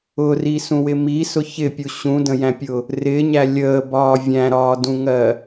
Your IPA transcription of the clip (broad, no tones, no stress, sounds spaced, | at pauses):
ʊ r i s ũ w ɪ m i s ʊ ç ɪ pʲ u ɕ ũ d ə̃ j æ̃ pʲ ʊ | r ɪ ɲ æ lʲ əː b ɒː vʲ æ̃ ɾ ɒː d ũ ŋ ɜ